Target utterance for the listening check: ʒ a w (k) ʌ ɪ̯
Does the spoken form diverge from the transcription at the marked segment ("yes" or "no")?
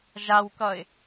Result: no